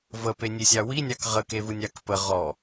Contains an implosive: no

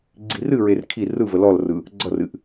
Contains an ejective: no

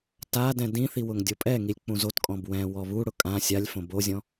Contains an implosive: no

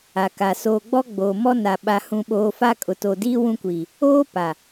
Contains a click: no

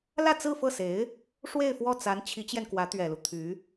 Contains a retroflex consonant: yes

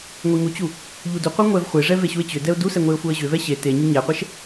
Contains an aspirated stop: no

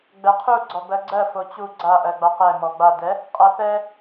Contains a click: yes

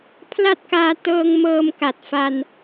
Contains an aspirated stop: yes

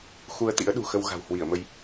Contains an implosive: yes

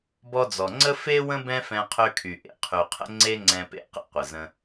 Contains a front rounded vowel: yes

